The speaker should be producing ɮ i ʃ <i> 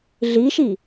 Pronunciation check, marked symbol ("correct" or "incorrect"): correct